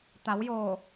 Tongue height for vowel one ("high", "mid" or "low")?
low